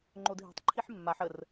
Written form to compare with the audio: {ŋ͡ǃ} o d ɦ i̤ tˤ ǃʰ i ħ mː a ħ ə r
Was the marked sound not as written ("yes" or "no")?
no